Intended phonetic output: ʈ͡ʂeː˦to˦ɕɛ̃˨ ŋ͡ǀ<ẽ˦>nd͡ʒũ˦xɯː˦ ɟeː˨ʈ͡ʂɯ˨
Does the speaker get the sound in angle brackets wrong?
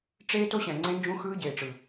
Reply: no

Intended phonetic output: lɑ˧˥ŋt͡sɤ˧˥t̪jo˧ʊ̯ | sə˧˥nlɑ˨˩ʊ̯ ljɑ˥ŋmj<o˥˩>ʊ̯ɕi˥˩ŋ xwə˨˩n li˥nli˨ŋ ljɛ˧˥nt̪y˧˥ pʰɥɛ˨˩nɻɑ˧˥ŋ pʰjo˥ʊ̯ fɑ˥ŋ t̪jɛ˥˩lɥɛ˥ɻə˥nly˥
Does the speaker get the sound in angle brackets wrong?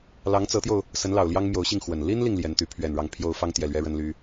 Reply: yes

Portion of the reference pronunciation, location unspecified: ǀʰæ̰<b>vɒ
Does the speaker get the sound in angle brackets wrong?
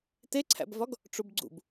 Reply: no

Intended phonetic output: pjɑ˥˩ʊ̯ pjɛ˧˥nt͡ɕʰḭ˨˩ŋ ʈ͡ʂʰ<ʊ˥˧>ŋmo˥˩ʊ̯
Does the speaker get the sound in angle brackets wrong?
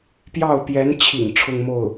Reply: no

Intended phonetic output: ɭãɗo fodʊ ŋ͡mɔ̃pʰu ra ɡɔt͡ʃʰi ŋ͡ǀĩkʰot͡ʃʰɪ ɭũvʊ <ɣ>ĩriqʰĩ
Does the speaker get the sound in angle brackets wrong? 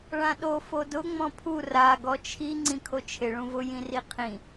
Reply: yes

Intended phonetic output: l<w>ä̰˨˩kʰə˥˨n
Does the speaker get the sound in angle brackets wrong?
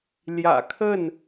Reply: yes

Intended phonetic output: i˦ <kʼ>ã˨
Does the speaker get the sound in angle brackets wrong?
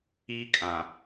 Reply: no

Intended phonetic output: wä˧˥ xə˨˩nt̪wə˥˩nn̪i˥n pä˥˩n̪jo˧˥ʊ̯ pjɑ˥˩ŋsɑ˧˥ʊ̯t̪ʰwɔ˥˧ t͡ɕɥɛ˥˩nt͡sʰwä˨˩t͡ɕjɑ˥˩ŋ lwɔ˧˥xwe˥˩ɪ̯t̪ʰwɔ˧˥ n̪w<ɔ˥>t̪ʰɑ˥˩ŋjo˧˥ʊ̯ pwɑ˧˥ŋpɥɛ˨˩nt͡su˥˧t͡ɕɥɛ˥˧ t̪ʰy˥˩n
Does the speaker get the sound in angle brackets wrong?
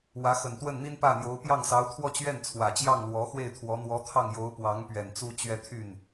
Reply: yes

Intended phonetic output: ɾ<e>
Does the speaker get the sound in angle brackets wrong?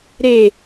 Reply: no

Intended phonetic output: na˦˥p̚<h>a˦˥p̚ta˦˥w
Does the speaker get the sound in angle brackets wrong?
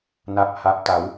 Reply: no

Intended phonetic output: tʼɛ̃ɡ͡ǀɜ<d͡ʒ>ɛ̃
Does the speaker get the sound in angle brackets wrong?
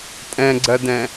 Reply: yes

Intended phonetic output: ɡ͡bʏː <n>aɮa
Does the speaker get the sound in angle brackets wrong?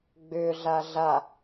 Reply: yes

